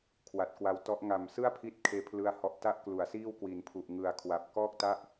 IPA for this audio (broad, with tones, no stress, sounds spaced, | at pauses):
kʰ w a˨˩ t̚ k w a˧ w t ɔ˦˥ ʔ ŋ a˨˩ m s ɯ˥˩ a̯ pʰ i˦˥ t̚ kʰ eː˥˩ pʰ l ɯ˥˩ a̯ h ɔ˥˩ ʔ t a˥˩ ʔ k l u˩˦ a̯ s iː˥˩ w k w i˩˦ n pʰ u˨˩ ʔ ŋ ɯ˨˩ a̯ kʰ w a˨˩ p̚ k ɔː˥˩ k̚ t a˥˩ ʔ